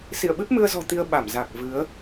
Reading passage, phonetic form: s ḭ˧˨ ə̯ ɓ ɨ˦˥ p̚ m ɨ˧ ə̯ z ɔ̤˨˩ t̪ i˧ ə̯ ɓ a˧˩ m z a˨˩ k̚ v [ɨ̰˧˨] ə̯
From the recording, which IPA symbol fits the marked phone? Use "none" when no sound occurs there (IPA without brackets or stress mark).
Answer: ɨ˨˦